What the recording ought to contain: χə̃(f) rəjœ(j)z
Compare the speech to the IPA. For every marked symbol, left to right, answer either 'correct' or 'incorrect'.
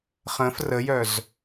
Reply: correct, incorrect: none

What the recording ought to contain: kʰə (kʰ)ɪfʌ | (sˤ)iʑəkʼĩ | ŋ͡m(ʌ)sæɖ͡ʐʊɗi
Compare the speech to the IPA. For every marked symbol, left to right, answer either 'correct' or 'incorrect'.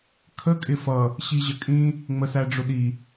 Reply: incorrect: kʼ, incorrect: ɕ, incorrect: ə

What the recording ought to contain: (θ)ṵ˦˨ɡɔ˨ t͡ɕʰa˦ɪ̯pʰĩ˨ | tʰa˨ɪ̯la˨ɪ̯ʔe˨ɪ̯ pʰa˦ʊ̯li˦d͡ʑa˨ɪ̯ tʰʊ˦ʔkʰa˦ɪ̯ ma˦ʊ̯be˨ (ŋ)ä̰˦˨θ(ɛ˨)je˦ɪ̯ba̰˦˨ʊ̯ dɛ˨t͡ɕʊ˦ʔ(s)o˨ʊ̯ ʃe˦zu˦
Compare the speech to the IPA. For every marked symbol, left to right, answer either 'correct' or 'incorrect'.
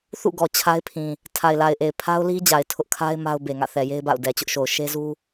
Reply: correct, correct, correct, incorrect: ʃ

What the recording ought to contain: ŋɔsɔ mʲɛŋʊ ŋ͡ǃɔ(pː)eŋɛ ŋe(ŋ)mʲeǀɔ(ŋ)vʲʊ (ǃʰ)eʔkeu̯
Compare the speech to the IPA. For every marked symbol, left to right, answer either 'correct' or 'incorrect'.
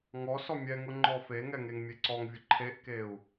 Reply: incorrect: f, correct, correct, correct

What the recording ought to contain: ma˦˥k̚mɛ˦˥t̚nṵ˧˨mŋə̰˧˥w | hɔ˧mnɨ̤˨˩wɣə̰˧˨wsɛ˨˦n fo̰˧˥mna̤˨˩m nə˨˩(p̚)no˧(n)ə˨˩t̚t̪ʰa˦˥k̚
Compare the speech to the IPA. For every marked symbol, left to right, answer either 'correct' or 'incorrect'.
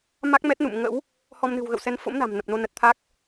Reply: correct, correct

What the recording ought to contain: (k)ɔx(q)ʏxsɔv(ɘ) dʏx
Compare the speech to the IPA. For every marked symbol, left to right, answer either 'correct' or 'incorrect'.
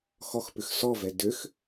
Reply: incorrect: x, incorrect: p, incorrect: ɛ

